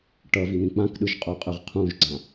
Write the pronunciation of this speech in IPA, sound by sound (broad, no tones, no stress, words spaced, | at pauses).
ʈʌvin̪ĩ k͡pãkɗɯʒqʼoqʼɯʁ qʰũʒɡ͡ǀã